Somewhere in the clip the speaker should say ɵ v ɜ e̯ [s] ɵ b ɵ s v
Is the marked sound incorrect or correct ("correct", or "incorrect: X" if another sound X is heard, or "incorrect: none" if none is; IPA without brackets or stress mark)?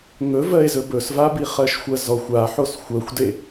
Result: incorrect: z